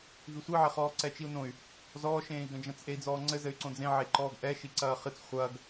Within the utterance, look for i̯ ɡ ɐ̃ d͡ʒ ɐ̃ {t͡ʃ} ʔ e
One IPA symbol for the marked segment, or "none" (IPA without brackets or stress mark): t͡s